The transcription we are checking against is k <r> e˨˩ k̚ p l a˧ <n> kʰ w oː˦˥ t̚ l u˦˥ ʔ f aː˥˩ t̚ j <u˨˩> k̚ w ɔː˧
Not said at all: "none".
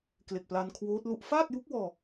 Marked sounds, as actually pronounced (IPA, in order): l, n, u˦˥

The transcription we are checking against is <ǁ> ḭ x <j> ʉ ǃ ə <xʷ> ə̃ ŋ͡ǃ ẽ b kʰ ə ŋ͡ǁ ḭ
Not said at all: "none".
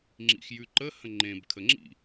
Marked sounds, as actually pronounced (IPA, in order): ŋ͡ǁ, j, h

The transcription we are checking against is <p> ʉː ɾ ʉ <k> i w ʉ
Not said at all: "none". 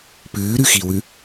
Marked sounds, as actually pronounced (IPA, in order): p, x

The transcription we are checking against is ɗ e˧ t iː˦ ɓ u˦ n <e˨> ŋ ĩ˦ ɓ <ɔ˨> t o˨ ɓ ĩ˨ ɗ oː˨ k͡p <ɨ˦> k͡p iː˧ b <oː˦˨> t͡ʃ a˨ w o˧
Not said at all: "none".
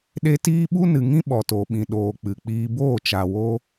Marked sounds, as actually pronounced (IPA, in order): ɨ˨, ɔ˨, ɨ˨, oː˦˨

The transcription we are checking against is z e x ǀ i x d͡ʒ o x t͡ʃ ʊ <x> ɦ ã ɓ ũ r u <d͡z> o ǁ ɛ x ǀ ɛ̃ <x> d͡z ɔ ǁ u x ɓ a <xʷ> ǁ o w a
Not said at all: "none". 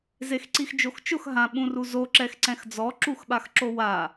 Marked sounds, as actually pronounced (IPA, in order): x, z, x, x

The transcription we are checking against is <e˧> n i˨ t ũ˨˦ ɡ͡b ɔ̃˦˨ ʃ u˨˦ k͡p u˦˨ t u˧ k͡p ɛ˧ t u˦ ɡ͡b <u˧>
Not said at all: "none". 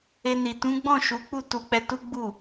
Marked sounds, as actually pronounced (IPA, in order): e˧, u˦˨

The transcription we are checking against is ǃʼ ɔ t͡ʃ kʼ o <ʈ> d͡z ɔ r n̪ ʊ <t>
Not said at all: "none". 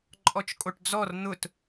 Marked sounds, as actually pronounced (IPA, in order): ʈ, t

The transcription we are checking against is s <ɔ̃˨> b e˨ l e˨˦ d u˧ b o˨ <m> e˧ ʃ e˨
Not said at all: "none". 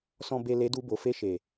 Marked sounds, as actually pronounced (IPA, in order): ɔ̃˨, f

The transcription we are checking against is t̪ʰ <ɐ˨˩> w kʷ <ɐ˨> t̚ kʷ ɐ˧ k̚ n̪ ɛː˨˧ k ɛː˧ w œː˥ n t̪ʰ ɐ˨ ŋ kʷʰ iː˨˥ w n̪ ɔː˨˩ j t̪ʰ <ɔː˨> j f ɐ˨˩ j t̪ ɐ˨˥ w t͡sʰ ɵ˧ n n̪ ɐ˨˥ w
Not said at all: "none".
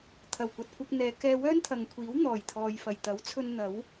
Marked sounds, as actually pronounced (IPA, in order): ɐ˨˩, ɐ˨, ɔː˨

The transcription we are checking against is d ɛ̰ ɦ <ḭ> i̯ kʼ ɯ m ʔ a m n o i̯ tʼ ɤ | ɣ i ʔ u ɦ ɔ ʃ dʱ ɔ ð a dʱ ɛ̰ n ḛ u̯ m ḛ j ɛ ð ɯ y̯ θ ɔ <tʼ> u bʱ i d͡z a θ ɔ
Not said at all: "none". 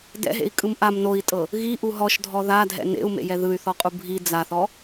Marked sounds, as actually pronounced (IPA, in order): ḛ, qʼ

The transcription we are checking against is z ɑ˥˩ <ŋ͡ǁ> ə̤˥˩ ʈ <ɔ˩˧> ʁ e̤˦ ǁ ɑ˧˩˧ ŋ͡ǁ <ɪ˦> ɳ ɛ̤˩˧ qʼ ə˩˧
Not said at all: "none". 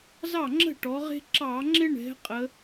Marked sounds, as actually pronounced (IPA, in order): ŋ͡ǁ, ɔ˩˧, ɪ˦

